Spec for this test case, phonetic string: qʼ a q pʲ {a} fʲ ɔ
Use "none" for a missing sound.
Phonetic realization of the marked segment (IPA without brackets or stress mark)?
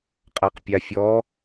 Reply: a